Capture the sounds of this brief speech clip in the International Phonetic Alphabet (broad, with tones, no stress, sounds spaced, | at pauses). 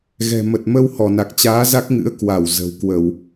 ɣ ɛ̤˨˩ m ə˨˩ t̚ m ə˧ w h ɔ˧˩ n a˨˩ k̚ t͡ɕ aː˨˦ z a˦˥ k̚ ŋ ɨ̰˧˥ ə̯ k w a˧˩ w z ə̤˨˩ w k w ə˧˩˨ w